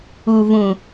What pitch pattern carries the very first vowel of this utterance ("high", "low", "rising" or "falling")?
low